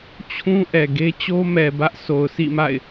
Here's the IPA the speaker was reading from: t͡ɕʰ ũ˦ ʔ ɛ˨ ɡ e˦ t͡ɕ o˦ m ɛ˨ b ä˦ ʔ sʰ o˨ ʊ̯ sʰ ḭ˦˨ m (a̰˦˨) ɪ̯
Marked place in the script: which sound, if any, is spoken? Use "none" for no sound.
a̰˦˨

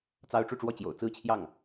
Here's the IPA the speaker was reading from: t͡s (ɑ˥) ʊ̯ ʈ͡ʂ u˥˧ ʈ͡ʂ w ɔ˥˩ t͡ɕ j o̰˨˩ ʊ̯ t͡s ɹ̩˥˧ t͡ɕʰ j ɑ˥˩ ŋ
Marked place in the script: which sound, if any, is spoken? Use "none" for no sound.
ɑ˥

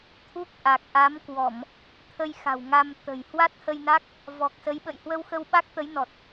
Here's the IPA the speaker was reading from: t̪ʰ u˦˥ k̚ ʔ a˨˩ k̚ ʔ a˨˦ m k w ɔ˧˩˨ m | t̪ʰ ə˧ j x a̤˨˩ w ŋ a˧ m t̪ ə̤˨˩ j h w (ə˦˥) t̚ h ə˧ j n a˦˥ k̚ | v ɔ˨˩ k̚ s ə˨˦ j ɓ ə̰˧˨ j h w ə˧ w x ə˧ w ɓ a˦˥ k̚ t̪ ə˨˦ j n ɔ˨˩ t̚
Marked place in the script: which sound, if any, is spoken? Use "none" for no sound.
a˦˥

